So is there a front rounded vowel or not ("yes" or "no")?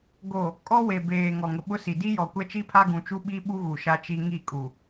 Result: no